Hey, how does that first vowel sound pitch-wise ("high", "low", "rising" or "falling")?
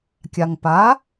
low